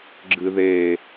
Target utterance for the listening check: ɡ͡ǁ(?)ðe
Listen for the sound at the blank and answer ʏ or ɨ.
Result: ɨ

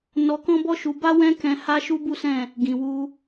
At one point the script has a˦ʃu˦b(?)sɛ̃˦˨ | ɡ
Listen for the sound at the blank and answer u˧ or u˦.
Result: u˦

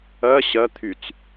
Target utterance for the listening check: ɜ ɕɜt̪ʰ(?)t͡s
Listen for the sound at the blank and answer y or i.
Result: y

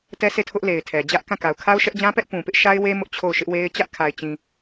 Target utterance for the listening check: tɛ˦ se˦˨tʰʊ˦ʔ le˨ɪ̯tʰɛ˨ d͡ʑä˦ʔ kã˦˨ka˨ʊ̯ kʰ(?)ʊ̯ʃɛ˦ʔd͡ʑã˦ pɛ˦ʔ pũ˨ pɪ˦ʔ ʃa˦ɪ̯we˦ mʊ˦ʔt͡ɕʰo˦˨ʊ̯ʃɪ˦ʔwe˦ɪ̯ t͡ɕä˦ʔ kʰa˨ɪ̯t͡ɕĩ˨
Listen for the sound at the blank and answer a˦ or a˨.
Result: a˦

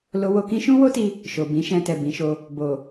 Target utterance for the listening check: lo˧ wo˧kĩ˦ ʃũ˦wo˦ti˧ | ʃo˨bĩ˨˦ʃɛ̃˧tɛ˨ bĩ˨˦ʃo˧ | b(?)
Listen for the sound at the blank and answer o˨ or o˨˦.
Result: o˨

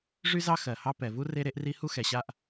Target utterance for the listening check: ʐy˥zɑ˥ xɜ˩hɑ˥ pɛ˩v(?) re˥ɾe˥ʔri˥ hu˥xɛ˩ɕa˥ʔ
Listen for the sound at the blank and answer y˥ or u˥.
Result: u˥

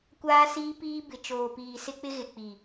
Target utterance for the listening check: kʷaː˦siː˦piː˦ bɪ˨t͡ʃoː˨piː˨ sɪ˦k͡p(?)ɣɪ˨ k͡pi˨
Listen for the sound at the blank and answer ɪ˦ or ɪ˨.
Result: ɪ˦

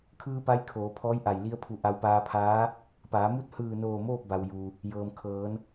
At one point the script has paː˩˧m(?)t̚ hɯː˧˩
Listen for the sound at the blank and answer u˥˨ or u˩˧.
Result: u˥˨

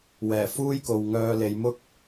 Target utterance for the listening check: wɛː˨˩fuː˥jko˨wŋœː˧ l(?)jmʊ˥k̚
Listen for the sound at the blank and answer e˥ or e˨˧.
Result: e˨˧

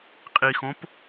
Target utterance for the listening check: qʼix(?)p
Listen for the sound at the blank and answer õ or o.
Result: õ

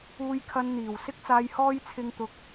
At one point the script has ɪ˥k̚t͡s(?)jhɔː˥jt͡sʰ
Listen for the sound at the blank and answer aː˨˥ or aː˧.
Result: aː˧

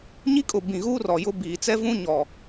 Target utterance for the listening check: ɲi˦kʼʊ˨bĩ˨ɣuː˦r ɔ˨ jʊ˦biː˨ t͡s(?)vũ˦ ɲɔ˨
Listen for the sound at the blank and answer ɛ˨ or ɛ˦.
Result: ɛ˦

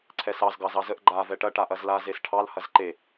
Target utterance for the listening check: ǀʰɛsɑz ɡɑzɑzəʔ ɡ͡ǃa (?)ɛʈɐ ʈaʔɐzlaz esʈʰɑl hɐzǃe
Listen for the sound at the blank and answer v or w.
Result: v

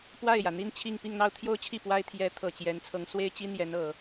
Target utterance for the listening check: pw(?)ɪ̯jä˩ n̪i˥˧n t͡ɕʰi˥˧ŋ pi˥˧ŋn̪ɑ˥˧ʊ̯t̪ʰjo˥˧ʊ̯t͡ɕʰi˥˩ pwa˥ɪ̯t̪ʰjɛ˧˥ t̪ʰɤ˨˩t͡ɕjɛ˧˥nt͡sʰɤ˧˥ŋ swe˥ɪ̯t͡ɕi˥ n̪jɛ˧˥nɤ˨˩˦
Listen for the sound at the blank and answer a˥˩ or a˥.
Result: a˥˩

